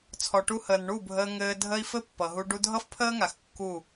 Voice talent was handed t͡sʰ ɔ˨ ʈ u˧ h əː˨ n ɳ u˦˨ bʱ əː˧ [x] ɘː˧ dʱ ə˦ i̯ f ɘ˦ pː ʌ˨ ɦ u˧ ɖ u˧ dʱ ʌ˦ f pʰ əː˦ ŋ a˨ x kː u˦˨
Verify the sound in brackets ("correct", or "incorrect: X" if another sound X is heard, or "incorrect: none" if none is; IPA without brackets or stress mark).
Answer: incorrect: ŋ